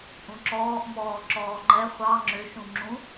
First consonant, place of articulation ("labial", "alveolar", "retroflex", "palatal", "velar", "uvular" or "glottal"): glottal